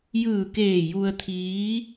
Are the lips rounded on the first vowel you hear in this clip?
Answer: no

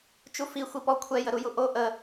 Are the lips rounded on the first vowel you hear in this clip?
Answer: yes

